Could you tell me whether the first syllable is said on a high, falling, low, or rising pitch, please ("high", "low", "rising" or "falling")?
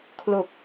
low